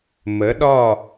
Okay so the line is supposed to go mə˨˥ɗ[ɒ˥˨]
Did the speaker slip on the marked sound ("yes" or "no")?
no